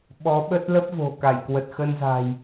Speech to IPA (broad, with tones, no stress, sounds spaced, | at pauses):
ɓ ɔ˨˦ ɓ ə˦˥ t̚ l ə˦˥ p̚ v o̤˨˩ k a˧˩ j k w ə˨˩ t̚ x ə˧ n z a̤˨˩ j